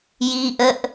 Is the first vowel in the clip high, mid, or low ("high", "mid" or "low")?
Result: high